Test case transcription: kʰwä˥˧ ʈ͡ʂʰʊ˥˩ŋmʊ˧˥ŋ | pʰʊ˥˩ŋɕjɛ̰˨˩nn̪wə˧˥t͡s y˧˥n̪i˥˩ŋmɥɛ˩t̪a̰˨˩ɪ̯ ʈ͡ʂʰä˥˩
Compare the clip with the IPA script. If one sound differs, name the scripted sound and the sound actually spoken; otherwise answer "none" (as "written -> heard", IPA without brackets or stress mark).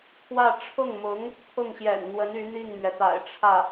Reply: t͡s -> n